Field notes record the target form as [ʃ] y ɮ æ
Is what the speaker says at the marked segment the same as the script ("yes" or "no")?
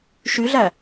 yes